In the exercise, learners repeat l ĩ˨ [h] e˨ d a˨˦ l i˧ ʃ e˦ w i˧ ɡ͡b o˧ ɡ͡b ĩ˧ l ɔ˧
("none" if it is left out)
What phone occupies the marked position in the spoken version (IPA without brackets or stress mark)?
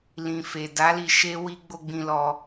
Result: f